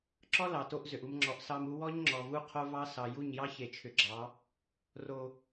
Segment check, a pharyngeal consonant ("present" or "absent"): absent